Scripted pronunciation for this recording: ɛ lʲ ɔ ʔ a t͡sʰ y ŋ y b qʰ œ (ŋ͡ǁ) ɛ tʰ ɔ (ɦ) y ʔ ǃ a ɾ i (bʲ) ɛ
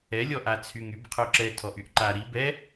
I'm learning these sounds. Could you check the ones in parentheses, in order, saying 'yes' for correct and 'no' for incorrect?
no, no, no

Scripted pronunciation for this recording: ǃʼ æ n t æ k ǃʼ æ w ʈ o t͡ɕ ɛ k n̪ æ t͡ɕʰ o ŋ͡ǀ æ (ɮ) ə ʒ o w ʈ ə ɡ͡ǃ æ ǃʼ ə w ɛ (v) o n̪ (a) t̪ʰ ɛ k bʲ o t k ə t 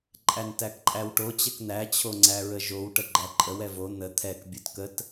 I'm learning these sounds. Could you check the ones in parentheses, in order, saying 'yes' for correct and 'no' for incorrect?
no, yes, no

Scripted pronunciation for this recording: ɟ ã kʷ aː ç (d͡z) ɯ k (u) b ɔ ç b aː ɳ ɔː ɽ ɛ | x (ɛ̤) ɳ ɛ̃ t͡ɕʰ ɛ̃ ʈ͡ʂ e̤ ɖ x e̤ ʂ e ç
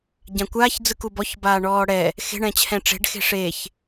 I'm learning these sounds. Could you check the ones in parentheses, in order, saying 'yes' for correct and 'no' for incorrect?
yes, yes, no

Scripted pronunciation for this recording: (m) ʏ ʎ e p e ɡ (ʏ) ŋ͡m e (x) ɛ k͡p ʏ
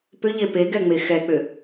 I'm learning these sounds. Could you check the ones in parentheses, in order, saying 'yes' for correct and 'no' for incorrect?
no, no, yes

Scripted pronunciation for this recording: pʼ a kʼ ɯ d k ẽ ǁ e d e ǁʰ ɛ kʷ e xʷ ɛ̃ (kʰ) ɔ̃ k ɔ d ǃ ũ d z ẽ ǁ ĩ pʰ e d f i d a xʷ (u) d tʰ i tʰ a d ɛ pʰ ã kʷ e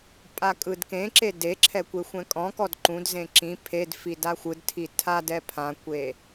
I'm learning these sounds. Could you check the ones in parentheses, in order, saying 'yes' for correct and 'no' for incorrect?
no, no

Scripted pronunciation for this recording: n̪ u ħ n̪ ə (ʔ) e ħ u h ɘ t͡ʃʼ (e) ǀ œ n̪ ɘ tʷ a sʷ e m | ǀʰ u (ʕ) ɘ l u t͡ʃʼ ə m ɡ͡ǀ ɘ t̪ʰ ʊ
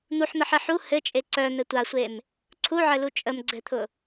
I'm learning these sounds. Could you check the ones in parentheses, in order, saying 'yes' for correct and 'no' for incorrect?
no, yes, yes

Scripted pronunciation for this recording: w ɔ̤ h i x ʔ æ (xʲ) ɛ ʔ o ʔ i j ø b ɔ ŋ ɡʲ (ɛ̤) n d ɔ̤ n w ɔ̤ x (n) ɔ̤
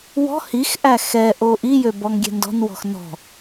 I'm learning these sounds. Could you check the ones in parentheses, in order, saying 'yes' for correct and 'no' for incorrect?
no, yes, yes

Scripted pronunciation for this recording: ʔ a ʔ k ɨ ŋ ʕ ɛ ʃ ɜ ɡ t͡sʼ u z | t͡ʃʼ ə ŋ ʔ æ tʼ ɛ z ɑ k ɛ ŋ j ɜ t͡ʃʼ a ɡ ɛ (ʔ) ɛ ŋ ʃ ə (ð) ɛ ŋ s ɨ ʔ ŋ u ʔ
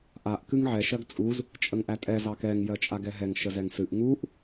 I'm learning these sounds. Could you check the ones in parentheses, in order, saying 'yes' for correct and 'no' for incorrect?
no, no

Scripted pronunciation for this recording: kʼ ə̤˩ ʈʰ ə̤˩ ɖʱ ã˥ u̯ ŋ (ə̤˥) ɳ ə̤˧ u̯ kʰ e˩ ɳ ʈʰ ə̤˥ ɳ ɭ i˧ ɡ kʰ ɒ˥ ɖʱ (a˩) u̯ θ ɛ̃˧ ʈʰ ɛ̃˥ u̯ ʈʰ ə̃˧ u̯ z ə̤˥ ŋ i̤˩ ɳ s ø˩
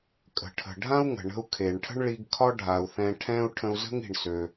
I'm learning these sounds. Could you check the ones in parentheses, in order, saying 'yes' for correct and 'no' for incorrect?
no, yes

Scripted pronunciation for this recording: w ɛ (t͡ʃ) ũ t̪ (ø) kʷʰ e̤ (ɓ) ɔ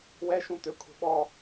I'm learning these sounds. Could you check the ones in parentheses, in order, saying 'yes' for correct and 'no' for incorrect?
no, yes, yes

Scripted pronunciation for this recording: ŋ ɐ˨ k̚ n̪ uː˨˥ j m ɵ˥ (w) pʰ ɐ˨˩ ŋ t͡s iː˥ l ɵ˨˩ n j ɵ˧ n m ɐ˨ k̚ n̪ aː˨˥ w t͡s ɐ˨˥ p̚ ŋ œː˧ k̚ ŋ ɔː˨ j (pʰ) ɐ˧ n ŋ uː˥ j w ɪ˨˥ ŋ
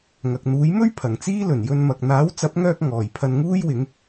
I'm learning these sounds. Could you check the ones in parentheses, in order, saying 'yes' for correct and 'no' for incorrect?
no, yes

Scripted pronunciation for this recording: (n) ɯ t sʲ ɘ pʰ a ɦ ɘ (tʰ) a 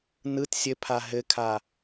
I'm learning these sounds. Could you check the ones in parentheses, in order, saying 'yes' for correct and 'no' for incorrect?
yes, no

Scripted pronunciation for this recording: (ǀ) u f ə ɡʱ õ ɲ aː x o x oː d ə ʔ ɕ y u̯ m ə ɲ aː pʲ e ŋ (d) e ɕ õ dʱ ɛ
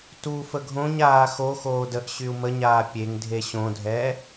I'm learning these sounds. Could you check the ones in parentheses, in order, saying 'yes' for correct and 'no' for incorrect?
no, no

